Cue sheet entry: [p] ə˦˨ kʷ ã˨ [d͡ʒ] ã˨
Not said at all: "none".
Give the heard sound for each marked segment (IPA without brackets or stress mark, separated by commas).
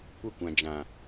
kʷ, d͡ʒ